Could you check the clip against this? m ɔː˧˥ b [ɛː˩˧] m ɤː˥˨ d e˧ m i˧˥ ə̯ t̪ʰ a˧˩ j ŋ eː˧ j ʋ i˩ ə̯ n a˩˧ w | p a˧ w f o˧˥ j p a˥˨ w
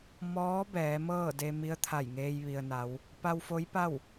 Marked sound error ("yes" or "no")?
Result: no